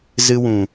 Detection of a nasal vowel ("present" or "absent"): present